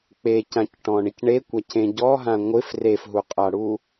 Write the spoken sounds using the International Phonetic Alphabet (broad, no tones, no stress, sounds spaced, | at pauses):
k͡p e c ã c ʈ ɔ̃ ɳ ɪ c ɳ e kʷ a c ẽ ɟ ɔ ɦ ã ŋʷ ɪ f r e f ɦ u qʼ a ɽ u